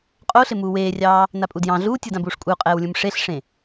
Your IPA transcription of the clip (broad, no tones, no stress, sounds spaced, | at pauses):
qʼ o ɬ ɪ m uː w eː rʲ ɑː | n a pʼ u d j ɑ̃ ɮ uː tʲ ɯ d ã b uː ʂ kʷʼ ɪ u̯ qʼ ɛː w lʲ ũ m ʂ e ɬ ʂ ẽ